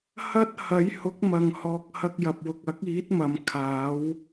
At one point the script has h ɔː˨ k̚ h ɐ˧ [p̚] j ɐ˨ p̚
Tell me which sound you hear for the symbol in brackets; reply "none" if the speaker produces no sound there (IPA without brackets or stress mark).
k̚